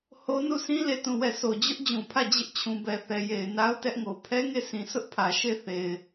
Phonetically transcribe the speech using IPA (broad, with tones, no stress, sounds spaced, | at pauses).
h o˦ n u˦˨ s ĩ˦ l e˦˨ t ũ˦˨ w ɛ˦˨ s o˨ d͡ʑ ʊ˦ ʔ d͡ʑ ũ˨ pʰ ä˦˨ d͡ʑ ɪ˦ ʔ t͡ɕʰ ũ˨ b ɛ˨ θ ɛ˨ j e˨ ɪ̯ n a˦ ʊ̯ t ɛ˦ ʔ ŋ o˨ pʰ ɛ˦ ŋ e˦˨ sʰ ĩ˨ sʰ ʊ˦ ʔ pʰ ä˨ ʃ e˦˨ θ e˨ ɪ̯